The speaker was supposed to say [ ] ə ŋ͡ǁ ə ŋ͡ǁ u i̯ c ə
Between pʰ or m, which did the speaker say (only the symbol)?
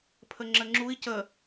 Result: pʰ